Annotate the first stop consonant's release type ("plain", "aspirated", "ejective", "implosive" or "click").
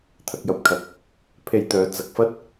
aspirated